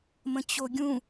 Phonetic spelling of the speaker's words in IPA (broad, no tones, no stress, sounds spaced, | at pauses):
m ə̃ t͡ɕ o ɡʲ ũ